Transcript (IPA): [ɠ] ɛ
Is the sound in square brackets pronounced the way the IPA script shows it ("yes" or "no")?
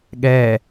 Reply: yes